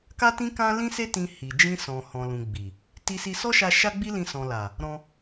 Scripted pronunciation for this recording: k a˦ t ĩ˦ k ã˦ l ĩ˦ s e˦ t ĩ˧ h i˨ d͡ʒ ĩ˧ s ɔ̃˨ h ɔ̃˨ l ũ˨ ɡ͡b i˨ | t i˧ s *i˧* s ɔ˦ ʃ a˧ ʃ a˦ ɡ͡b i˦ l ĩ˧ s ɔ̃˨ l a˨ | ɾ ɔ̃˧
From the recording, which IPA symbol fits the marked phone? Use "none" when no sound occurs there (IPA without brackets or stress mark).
i˧